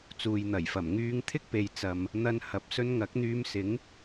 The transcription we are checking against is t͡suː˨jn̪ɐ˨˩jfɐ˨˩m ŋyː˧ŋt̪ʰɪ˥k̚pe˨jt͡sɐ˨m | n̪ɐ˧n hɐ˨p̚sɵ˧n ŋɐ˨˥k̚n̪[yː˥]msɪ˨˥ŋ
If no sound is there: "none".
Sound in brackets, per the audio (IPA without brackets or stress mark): yː˧